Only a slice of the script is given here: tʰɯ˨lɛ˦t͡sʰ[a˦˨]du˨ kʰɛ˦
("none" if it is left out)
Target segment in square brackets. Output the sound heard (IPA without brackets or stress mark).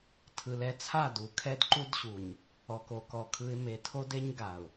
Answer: a˦˨